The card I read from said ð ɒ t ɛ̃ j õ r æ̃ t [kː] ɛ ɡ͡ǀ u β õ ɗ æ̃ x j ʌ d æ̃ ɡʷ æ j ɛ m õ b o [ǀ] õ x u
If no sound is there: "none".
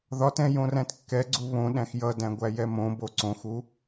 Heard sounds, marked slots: kː, ǀ

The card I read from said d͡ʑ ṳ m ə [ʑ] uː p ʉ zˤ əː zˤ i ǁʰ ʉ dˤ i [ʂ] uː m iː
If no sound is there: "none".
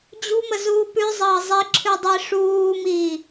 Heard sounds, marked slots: z, ʂ

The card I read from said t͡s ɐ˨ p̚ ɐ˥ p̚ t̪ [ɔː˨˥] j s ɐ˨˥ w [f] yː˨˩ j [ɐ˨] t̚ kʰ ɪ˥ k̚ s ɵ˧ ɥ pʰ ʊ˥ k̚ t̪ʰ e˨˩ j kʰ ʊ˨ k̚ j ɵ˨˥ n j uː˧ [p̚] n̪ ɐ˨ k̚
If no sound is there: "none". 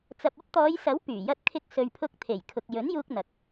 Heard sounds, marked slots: ɔː˨˧, p, ɐ˥, k̚

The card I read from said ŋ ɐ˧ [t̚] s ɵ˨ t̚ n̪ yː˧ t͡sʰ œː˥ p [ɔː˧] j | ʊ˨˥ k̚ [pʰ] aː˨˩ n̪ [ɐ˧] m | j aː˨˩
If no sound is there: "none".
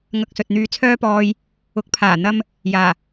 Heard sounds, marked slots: k̚, ɔː˧, pʰ, ɐ˧

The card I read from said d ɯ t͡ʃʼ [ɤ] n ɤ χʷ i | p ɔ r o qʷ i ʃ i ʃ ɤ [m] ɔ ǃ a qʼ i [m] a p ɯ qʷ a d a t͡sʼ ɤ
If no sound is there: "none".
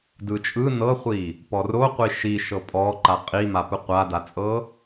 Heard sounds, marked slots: ɯ, pʼ, m

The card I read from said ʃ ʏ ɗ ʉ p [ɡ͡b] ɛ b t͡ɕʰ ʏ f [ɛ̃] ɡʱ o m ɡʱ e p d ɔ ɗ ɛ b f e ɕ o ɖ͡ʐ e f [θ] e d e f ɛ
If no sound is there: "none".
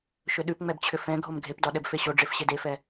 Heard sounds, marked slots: ŋ͡m, ɛ̃, ɕ

